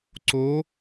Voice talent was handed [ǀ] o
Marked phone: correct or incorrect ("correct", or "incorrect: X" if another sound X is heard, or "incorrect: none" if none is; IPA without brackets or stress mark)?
correct